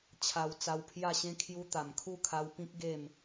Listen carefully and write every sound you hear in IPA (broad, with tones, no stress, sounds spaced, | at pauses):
t͡ɕʰ a˧ w t͡s a˧ w pʰ j a˥˧ ɕ ẽ˦ kʰ j u˧ t̪ a˨˩ m kʰ u˥˧ kʰ a˧ w p ĩ˦ k̚ ɡ e˥˧ m